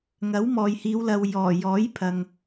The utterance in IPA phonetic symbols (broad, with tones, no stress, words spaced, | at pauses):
ŋɐ˨˥wmɔː˨jhiː˨˧wlɐ˨w jɔː˨˩ jɔː˨˥jpʰɐ˨ŋ